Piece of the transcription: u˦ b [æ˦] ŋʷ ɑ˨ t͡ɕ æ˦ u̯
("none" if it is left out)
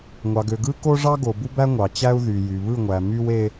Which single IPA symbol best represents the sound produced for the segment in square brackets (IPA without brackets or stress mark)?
æ˦